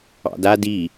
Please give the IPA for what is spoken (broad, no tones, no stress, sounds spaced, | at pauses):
ɑ̰ d a d i